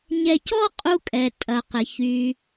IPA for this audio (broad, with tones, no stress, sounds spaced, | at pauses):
ɲ ɛ˧ c ɔ˥ qʼ u˧ kʼ ɛ˩ tʼ ɐ˩ q ɪ˩ ç y˩